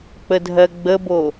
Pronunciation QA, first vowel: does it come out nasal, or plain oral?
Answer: oral